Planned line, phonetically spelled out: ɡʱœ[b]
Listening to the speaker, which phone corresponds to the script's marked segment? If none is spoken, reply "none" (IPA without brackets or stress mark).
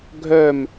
m